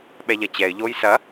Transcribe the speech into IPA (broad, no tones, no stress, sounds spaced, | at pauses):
ɓ ɛ ʎ ɐ t͡ɕ ɛ ɪ̯ ʎ oː j s ɐ